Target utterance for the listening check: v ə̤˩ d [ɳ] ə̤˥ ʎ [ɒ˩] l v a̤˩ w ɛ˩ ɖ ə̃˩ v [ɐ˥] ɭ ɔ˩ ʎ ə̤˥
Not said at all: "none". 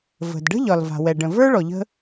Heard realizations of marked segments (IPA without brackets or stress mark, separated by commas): ɖ, ɒ˩, ə˞˥